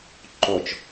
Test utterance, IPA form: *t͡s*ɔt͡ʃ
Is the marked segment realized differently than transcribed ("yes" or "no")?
yes